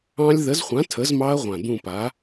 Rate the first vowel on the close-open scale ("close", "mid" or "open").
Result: open